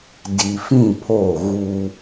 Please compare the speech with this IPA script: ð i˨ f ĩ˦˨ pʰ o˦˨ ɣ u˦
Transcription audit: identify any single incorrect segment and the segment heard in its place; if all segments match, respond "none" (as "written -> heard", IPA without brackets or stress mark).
ð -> d